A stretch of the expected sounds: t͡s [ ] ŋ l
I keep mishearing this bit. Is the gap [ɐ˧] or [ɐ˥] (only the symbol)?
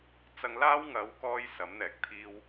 ɐ˧